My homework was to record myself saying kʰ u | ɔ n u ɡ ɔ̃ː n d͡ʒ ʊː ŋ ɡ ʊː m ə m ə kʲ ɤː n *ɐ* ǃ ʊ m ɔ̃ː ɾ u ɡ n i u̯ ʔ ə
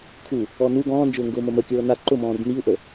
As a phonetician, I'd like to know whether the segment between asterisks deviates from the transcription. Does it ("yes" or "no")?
yes